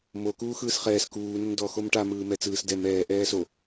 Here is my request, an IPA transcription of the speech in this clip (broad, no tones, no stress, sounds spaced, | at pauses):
m o k uː x ɯː s χ ɛː s k uː n ə n d ɔ x o m ʈ a m ɯː m ɛ t͡s ɯː s d ɛ m ɛː ʔ ɛː s o